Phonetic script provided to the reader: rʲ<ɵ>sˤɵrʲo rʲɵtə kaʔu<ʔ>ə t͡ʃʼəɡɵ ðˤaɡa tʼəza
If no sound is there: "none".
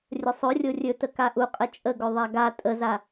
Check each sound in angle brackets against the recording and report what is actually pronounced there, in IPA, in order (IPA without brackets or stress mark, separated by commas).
ə, qʼ